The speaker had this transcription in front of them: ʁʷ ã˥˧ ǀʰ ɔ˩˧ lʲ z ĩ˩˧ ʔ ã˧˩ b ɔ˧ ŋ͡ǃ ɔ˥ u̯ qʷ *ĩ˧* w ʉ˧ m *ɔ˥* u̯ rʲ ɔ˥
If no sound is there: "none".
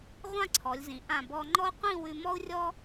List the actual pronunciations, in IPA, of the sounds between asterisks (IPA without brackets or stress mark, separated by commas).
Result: ĩ˥˧, ɔ˥